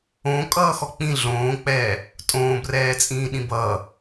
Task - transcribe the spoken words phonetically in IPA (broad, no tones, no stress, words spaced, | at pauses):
õ kʼʌːxɔk͡pĩ ɮõːk͡pɛː | tʼõːbrɛːt͡sʼĩː ɗĩbʌː